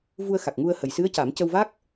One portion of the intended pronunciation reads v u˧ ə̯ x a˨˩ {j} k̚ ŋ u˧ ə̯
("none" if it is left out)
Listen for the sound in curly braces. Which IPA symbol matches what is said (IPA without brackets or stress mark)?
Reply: none